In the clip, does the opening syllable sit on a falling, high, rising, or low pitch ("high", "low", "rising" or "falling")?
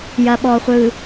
low